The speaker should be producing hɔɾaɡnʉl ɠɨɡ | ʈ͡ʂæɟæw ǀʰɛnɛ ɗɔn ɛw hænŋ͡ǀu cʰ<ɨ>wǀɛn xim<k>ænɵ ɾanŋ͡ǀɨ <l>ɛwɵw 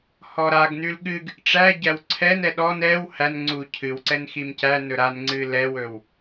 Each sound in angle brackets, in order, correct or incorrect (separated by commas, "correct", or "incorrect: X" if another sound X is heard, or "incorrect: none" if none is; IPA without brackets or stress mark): correct, incorrect: c, correct